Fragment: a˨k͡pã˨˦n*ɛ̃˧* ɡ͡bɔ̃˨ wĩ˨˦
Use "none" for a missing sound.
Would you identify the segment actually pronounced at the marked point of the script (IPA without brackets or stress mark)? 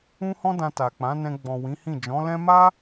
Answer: ɛ̃˧